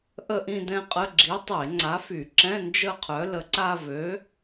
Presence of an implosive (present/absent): absent